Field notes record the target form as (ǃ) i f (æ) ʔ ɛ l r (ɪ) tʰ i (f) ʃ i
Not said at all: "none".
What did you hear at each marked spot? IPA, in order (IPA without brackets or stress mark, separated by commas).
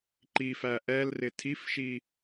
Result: ǃ, æ, ɪ, f